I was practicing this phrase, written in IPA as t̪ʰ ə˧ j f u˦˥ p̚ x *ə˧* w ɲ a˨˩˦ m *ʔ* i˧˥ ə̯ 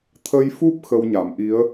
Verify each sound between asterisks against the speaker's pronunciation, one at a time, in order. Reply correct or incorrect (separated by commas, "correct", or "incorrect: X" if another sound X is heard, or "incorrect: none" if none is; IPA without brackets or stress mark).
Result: correct, correct